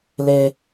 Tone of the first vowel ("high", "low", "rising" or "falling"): high